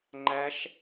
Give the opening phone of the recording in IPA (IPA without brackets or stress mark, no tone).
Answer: ŋ͡ǃ